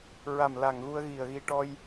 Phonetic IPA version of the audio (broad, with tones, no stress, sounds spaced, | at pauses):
ɹ a˨˩ m l a˨˩ ŋ ɣ u˧ ə̯ ɣ i˨˩ ə̯ ɣ i˧ ʈ ɔ˧ j